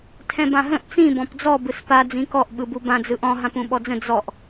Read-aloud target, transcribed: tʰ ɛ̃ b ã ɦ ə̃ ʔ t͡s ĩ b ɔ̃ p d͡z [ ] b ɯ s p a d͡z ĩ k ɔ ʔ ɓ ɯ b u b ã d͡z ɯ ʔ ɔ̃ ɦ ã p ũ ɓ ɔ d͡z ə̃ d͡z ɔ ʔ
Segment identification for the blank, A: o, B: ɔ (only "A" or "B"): B